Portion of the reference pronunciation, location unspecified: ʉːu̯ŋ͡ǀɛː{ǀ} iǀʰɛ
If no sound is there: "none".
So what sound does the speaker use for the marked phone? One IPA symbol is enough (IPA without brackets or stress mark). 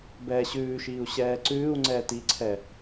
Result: t